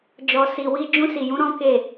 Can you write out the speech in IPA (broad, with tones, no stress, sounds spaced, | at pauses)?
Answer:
d͡ʒ ɔ˨ s i˨ w i˧ d͡ʒ ũ˧ s i˨ j ũ˨˦ ɾ ɔ̃˦ k e˦˨